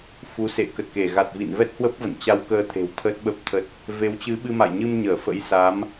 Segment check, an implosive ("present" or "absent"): present